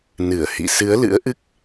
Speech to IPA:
n ɨ˧˩ ə̯ h ḭ˧˨ s ɨ˨˦ ə̯ l ɨ̰˧˥ ə̯ ʔ ɨ˦˥ k̚

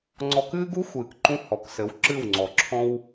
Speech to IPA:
ŋ͡ǀ ɔ˧ k ɨː˦ ɡ u˦ xʷ ɨː˨ k ǃ ũ˦ h ɔ˨ k s ɘ˨˦ w ǁ ɨ˦˨ w ŋ͡ǀ ɔ˨ ǁʰ ɔ̃˦ w

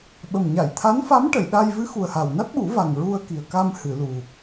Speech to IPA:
ɓ ə˨˩ m ɲ a˨˩˨ j t̪ʰ a˧˥ n f a˧˥ m ʈ ə˨˩˨ j ɗ a˧ j v ɨ˧˥ x u˨˩ ə̯ h a˨˩ w n a˦˥ t̚ ɓ u˨˩˦ v a˨˩ ŋ ɹ u˧ ə̯ k i˨˩ ə̯ k a˧ m h ɨ˨˩˨ l u˨˩

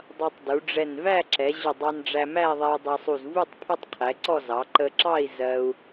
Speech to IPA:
dˤ ʌ˧ tˤ d u˩˧ ɖ͡ʐ ɛ˧˩ n v æ˥˧ ǁ ɛ˩˧ ʑ ʊ˧˩ dˤ ɑ˧ n ɖ͡ʐ æ˧ m æ˥˧ ðˤ ɛ˧ u̯ dˤ ɛ˧ sˤ u˧˩ z v u˥˧ tˤ pʰ ʊ˥ tˤ qʰ ɛ˩˧ ǀ ɔ˥˧ z ɑ˩˧ ǃ ə˧ ǁ ɑ˥˧ i̯ z ɜ˧ u̯

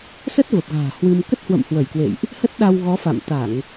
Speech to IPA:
s ə˦˥ t̚ v ə˨˩ p̚ ɣ a̤ː˨˩ h w ɨ˧ m k ə˦˥ t̚ h w ə̰˧˨ m h w ə˧˩ j k w ḛ˧˨ j ʔ | h ə˦˥ t̚ ɗ a˧ w ɣ ɔ˨˦ f a̰˧˨ m t̪ a˧˩˨ ŋ

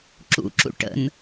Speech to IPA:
ǁ ṵ ǁ ṵ ʈ ə̰ n

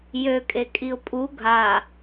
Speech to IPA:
j ø kʼ e kʼ i ʊ̯ pʼ u ɡʱ a

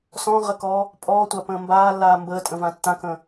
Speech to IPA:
s ɔ̃ ʁ ə k ɔː | pʼ ɔː tʷ a p ə̃ː m b aː lː aː m b əː tʼ ə̃ v ã tː ã k ə̃ː

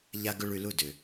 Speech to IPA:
ʎ a˥ ɡ ʏ˥ ɭ y˧ l u˥˩ d ʏ˩

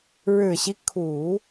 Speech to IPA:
ɻ ɻ̩˨˩ ɕ i˦ kʰ u˨˩˦

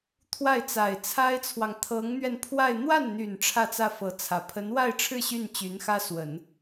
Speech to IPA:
t̪ʰ w a˥˩ ɪ̯ t͡s a˨˩ ɪ̯ t͡sʰ a˥ ɪ̯ t͡sʰ w ɑ˨ ŋ t̪ʰ ɤ˧˥ ŋ n̪ ɥ ɛ˧ n pʰ w a˥˧ ɪ̯ n̪ w a˥˩ n n̪ y˨˩ n ʈ͡ʂʰ ä˥˧ t͡s ä˥˩ f ɤ˧˥ t͡sʰ ä˨˩ pʰ ə˧˥ n w a˥˧ ɪ̯ ʈ͡ʂʰ ɻ̩˥˧ ɕ y˥˩ n t͡ɕ y˧˥ n x ä˥ s w ə˨˩˦ n

